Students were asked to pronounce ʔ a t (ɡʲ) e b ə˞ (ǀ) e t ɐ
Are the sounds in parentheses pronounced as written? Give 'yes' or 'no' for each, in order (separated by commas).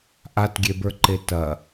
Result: yes, no